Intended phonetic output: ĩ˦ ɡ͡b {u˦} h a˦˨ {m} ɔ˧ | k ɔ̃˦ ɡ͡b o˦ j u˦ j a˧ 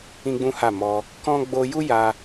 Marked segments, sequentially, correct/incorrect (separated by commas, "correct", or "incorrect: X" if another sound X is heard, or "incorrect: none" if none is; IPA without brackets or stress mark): incorrect: ũ˦, correct